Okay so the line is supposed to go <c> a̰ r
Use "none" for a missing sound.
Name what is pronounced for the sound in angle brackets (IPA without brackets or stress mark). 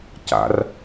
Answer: c